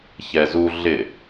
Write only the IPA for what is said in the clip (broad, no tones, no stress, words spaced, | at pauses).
çɛzu ɮɪ